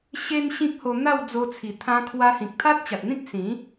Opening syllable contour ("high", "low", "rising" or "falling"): high